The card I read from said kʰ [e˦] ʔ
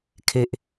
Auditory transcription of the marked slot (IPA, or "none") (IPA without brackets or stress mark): e˦